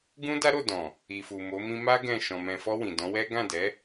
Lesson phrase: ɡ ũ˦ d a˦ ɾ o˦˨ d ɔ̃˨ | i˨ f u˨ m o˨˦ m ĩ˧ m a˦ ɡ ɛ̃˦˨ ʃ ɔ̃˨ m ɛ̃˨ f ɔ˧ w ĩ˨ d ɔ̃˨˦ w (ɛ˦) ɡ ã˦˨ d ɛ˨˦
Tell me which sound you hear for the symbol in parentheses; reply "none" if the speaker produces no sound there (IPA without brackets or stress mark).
ɛ˦